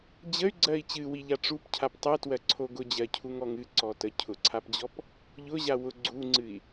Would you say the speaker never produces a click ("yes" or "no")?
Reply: no